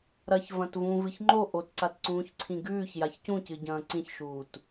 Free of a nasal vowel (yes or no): no